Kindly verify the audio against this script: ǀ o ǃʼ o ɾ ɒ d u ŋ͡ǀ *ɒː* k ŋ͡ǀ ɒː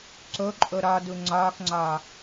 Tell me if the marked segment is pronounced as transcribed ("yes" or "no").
yes